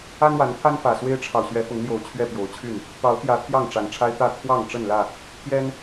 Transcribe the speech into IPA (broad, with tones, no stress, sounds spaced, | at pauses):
a˦ n w a˨˦ n t̪ʰ a˦ n f ä˨˩ s w e˦ ɪ̯ ʈ͡ʂʰ ɑ˨ ʊ̯ ɕ ɥ ɛ˨˦ f ʊ˨˦ ŋ l j o˨˩ ʊ̯ t͡ɕʰ ɥ ɛ˥˨ p j o˨˦ ʊ̯ t͡ɕʰ y˥˨ n | t̪ ɑ˨˦ ʊ̯ t̪ j ä˨˦ t̪ʰ j ɑ˥˨ ŋ ʈ͡ʂ a˨˩ n ʈ͡ʂʰ a˦ ɪ̯ t̪ ä˥˨ t̪ʰ w ɑ˥˨ ŋ ʈ͡ʂ ə˥˨ n l ä˥˨ | t̪ʰ j ɛ˦ n